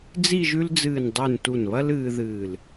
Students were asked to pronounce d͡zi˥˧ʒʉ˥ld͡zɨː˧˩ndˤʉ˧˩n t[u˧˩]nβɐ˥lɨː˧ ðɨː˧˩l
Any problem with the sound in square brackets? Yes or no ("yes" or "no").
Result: no